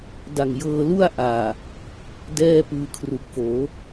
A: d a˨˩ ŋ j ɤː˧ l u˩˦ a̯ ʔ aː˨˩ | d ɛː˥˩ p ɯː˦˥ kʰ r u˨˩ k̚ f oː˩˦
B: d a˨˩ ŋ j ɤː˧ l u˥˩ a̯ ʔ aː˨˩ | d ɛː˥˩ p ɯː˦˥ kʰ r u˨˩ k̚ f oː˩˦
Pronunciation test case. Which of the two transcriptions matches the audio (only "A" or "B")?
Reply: B